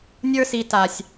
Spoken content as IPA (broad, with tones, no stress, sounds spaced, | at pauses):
nʲ ə˞˧ s i˨ t a˨ sʲ